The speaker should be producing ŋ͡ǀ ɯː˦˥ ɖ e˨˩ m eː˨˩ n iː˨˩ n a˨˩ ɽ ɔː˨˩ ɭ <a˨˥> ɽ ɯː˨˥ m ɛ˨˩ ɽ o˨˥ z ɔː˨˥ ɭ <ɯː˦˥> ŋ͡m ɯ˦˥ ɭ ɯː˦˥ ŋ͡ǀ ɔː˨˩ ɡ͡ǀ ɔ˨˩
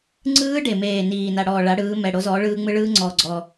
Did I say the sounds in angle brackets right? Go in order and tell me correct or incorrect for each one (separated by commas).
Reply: correct, correct